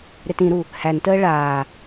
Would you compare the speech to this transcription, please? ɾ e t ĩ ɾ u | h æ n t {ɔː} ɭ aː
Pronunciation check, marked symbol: incorrect: əː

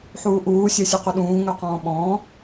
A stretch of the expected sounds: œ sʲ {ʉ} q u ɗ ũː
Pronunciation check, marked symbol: correct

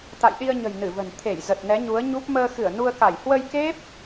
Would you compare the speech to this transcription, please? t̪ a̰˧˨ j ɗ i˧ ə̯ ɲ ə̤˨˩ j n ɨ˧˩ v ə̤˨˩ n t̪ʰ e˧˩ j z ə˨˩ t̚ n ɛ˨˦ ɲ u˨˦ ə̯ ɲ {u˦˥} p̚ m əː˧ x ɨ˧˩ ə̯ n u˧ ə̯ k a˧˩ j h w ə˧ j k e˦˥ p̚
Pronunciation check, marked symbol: correct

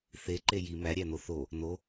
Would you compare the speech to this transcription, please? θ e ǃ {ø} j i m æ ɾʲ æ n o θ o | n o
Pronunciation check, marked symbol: incorrect: e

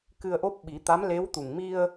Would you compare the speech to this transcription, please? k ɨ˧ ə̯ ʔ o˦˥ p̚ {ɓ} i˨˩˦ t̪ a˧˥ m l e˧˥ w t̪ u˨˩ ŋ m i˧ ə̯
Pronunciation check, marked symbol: correct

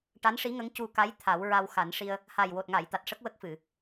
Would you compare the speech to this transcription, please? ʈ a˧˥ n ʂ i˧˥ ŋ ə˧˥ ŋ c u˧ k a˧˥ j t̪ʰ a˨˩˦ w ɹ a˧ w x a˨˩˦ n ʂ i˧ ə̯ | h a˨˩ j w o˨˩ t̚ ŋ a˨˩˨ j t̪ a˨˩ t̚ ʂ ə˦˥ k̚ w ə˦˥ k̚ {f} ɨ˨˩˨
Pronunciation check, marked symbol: correct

